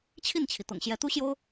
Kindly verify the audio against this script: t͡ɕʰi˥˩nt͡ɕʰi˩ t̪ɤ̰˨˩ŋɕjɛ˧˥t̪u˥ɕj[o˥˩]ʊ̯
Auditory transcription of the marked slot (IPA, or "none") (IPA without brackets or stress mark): o˥